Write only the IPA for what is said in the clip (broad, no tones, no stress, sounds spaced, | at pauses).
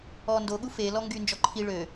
ɔ n d o ɠ u f e l ɔ ŋ ɡ y n d͡ʒ ɔ ǃʰ i ɭ ø